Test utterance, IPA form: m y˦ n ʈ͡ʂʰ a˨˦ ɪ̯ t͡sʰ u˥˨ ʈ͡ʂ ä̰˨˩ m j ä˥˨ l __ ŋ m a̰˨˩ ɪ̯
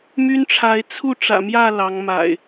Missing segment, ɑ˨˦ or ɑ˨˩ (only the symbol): ɑ˨˦